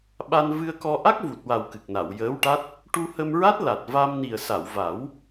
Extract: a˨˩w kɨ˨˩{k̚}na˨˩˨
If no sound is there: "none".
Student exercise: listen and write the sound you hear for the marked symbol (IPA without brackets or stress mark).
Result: k̚